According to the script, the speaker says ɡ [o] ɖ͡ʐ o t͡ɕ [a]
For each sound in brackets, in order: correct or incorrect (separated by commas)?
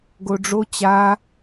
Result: correct, correct